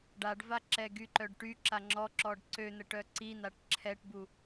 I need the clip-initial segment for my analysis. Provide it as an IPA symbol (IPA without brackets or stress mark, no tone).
ɖ